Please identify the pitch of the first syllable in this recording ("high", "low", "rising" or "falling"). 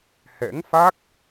rising